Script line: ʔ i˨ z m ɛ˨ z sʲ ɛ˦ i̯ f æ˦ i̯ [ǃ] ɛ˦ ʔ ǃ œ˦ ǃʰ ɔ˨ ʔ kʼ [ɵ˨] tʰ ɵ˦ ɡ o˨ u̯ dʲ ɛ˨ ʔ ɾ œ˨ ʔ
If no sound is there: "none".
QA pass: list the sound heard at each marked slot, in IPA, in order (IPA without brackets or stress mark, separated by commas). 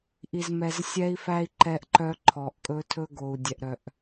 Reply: ǃ, ɵ˦